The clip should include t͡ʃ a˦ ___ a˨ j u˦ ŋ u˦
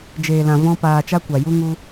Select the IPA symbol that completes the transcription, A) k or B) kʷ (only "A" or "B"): B